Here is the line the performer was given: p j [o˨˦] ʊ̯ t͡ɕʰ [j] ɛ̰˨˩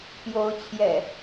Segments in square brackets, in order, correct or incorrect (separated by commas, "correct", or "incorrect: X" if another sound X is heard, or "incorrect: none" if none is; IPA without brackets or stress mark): correct, correct